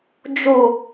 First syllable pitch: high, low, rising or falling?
low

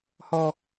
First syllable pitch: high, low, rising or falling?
low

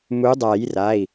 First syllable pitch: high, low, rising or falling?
rising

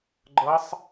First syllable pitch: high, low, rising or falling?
rising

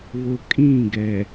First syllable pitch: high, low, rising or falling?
low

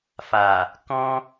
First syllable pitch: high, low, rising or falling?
low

